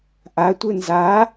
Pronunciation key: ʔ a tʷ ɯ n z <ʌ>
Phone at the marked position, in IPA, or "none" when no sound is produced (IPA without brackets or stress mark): a